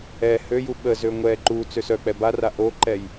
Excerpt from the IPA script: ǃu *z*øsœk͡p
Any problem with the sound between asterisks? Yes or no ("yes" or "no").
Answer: yes